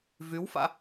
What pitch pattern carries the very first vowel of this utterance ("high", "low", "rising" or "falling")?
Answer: rising